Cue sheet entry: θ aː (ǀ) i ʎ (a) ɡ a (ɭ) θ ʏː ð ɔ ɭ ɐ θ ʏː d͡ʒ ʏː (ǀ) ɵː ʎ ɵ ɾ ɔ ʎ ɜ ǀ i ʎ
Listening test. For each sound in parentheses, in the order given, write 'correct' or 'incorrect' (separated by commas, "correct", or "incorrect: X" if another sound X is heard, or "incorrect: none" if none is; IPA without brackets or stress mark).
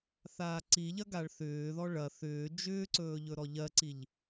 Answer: correct, incorrect: ɐ, correct, correct